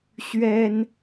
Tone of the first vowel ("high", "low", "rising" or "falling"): high